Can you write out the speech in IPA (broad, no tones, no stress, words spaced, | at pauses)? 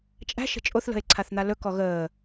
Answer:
t͡ʃʼæ̤ʃə̤ t͡ʃʼoθlə̤e̯ǀʰaθn̪a lɵkɔ ɣəː